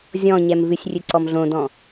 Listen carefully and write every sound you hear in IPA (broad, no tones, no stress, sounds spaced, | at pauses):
zʲ ɔ̃ ɲ ɛ m v ɨ sʲ rʲ ɨ ǀ ɔ m ɮ õ d ɔ̃